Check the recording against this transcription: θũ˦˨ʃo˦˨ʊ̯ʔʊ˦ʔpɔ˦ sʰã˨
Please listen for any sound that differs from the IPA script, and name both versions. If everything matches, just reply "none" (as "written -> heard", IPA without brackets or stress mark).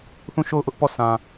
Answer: ɔ˦ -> ɔ˦˨